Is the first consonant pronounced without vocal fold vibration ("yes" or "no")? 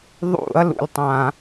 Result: no